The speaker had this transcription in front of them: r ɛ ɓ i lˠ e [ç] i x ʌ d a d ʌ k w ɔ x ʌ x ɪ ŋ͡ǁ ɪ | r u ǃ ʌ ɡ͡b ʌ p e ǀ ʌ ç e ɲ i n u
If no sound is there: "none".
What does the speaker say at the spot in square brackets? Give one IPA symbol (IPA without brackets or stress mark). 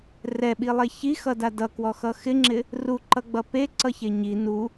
ç